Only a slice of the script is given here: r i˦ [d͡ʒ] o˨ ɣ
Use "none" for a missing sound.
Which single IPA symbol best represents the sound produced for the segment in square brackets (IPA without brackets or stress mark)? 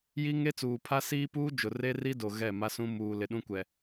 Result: d